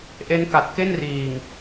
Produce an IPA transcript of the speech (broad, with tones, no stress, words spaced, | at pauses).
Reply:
ʔe˦˥n ka˨˩t̚ke˥˩n riː˨˩ŋ